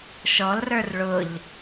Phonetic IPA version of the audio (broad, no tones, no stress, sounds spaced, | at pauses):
ʃ ɔ l r ə˞ r ɭ ʊ ʎ